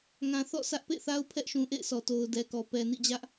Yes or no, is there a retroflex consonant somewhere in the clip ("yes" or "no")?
no